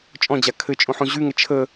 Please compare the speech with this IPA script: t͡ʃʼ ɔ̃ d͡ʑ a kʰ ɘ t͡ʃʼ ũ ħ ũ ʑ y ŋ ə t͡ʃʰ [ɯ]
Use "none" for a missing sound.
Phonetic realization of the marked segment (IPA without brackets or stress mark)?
ə